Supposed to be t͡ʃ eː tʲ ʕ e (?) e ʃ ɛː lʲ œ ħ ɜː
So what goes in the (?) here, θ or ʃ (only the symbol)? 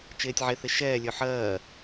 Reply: θ